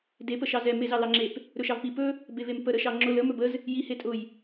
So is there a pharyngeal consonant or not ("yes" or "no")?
no